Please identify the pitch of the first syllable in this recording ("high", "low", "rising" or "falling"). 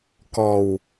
low